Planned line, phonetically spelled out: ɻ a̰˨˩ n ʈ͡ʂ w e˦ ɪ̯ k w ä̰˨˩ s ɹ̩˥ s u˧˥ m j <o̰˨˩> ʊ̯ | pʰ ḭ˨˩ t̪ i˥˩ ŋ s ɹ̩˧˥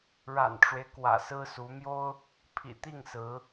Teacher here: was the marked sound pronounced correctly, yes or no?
no